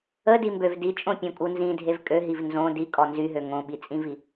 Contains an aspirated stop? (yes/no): no